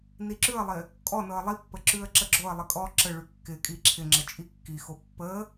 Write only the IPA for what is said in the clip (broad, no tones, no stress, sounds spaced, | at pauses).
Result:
n i ǁ ʉ ə̯ lˠ ɪ | kʼ ɔ n ɤ ə̯ lˠ i pː ə ǁ ʉ ə̯ ǁ ə ɡ͡ǁ o ə̯ lˠ ɪ kʼ ɔ ǁ ə ɭ ʉ kː ɪ kʼ i ǁʰ ɪ ŋ͡ǁ ə t͡ʃʼ i kː i x o pː ə